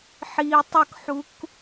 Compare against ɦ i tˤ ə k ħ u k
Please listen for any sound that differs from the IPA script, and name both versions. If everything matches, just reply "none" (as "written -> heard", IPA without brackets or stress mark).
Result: ɦ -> ħ